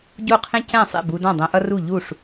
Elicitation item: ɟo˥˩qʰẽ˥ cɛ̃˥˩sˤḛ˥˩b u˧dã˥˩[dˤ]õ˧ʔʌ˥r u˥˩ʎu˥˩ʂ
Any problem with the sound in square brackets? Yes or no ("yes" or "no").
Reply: no